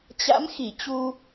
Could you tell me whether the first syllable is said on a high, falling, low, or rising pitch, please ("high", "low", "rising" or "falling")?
rising